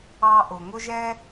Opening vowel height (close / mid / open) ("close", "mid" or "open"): open